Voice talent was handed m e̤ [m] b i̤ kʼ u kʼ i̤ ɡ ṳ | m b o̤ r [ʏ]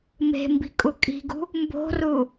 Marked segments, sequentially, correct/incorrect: correct, incorrect: u

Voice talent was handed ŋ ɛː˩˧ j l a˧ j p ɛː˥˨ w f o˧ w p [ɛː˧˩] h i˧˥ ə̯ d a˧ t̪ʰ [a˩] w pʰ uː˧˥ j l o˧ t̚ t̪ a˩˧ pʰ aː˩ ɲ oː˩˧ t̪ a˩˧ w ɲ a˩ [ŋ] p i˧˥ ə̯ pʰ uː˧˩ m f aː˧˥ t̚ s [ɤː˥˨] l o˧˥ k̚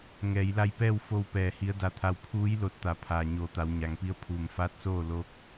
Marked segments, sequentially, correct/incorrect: correct, incorrect: a˧, correct, incorrect: oː˥˨

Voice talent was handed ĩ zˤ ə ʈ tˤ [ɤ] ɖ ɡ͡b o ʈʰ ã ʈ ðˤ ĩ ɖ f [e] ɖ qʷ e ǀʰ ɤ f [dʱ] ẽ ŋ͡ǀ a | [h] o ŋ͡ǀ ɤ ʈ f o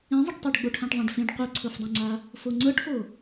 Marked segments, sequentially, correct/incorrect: correct, incorrect: ẽ, incorrect: dˤ, incorrect: f

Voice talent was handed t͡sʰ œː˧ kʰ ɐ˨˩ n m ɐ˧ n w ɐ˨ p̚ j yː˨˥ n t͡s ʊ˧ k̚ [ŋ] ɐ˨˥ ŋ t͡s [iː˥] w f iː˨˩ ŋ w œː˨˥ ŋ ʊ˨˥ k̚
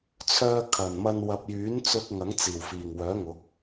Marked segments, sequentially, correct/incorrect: correct, incorrect: iː˨˩

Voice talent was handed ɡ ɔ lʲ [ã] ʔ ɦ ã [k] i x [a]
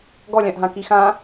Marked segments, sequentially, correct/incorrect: correct, correct, incorrect: ã

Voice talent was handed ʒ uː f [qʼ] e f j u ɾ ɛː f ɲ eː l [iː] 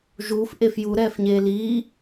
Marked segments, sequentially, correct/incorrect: incorrect: ʔ, correct

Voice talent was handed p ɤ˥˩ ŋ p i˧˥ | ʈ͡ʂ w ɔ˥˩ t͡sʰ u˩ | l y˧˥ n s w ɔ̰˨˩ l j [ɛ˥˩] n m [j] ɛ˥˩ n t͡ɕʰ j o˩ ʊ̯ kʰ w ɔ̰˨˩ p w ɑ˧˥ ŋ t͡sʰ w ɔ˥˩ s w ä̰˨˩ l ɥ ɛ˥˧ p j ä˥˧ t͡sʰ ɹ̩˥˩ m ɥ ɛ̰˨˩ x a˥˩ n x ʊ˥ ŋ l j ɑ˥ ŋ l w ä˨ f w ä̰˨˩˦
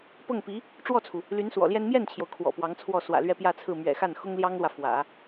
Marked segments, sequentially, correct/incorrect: incorrect: ɛ˥, correct

